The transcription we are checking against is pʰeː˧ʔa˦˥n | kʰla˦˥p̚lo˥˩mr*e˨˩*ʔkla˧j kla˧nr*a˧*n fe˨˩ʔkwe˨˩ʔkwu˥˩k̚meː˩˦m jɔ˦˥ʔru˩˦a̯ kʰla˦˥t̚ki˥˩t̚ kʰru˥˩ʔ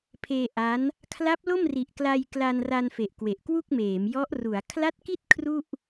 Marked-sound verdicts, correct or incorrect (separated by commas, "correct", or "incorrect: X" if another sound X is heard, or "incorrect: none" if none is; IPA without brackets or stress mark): incorrect: i˨˩, correct